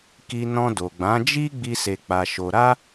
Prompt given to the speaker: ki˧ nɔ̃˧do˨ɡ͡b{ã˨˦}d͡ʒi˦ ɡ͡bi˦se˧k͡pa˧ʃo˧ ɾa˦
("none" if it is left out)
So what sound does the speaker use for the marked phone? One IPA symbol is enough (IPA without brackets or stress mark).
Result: ã˨˦